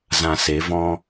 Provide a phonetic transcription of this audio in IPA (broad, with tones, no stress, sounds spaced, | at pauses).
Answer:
z ã˧ s e˨˦ v ɔ̃˦